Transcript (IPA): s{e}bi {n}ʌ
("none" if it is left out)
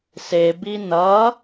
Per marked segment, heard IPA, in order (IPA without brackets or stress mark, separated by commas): e, n